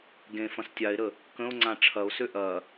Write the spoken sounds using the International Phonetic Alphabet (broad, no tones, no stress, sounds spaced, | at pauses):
ɡ ẽ f ɐ̃ s tʲ a e̯ ɾ ə | k ə̃ o̯ ŋ͡ǀ ã ʈ͡ʂʰ ɐ o̯ s ø ʔ ɐ